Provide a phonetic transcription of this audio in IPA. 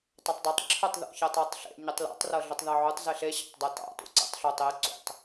tˤ ɛ tˤ dˤ u tˤ ǁʰ ə tˤ ð o̰ ç ɛ tˤ ɤ tˤ ɬ ḛ ɲ ɯ tˤ l ḛ tˤ r ɤ ɮ ə tˤ ð ɑ ʕ u tˤ z e ɬ e ɕ ɑ̰ tˤ dˤ ɛ t ɑ̰ t ṵ ǀ ḛ tˤ ɬ o tˤ e ǀ ṵ tˤ

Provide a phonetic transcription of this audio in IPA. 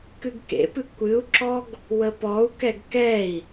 k ɨ ɡ k ḛ p ɨ kʷ ɨ u̯ ǁ ɔ ɡ | w ə p ɔ u̯ k ɛ ɡ k ɛ i̯

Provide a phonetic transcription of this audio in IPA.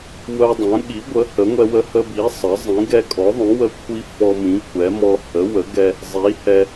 w œ˧ dˤ œ̃˩˥ ɠ i˩˥ ɡʷ ə˩˥ h ə˩˥ ŋʷ ɛ˧ w ə˧ h ə˧ b i˩˥ sˤ ə˩˥ zˤ ĩ˩˥ ɡ ɛ˧ kʼ ɔ˩˥ ðˤ œ̃˩˥ w ə˧ kʷʰ i˧ f ɔ˧ m ĩ˩˥ kʷʰ ɛ˩˥ m ɔ˧ h ə˩˥ w ə˩˥ ɡ ɛ˧ | zˤ i˩˥ h ɛ˧

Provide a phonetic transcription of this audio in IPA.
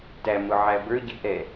t æ m ʊ ʕ æ b ə˞ ɟ ɪ ʔ ɛ

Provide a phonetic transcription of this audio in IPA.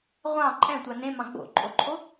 ʁʷ ɑ̃ ǃʼ ɛ̃ tʷ ɑ n ẽ m ɑ̃ ɡ͡b o̰ ǃʼ o ǃʰ o

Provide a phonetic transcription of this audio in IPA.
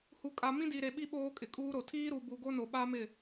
h u˨ kʼ a˨ m ĩ˦ d i˨ ɾ e˨ ɓ i˦ ɓ oː˦ kʼ ɪ˨ kʼ uː˦ ɾ o˨ tʰ iː˦ ɾ u˨ b u˨ ɡ o˦ n o˨ ɓ a˦ m ɪ˦˨

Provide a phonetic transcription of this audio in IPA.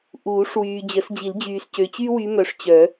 ʔ uː˨˩˦ ʂ w yː˨ d͡ʑ ə˨˩˦ s d͡ʑ i˨˩˦ l d͡ʑ yː˨ s c ø˨ t͡ɕ y˥ w y˧˥ m œ˨ ʂ t͡ɕ œ˨˩˦

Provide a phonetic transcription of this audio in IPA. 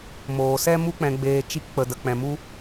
m oː˨ s ɛ˦ m u˦ k͡p ɛ̃˧ ɡ͡b eː˧ t͡ʃ i˧ k k͡p ə˨ d ə˨ k͡p ɛ̃˨ m u˧

